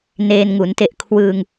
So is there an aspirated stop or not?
yes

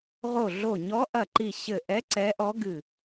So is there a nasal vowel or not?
no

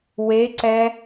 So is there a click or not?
yes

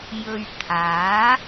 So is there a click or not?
no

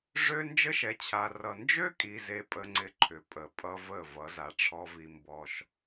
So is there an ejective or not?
yes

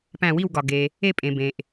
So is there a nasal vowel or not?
yes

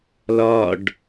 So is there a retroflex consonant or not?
yes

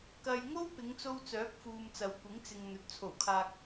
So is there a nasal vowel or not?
no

